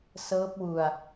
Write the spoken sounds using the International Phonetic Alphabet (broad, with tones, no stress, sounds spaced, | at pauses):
s ɤː˦˥ p̚ w u˧ a̯